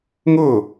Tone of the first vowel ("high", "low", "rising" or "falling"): falling